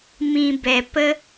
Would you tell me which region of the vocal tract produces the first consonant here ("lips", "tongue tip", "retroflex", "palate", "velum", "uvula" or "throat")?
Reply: lips